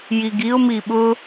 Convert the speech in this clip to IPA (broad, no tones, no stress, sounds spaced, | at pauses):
j i ɡ i ʊ̯ m i ɓ ʊ